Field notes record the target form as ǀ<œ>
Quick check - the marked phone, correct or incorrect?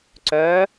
correct